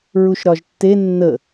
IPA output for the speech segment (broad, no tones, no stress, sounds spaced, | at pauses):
ɹ u ʃ ɾ ɒ ʒ tː e nː ə